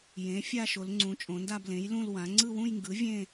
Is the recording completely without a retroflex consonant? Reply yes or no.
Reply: yes